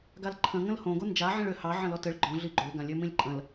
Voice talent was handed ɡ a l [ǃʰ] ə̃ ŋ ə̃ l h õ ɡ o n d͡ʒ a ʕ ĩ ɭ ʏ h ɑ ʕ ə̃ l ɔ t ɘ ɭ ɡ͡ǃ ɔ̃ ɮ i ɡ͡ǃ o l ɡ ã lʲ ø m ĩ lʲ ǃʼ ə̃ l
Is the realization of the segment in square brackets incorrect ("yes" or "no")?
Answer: no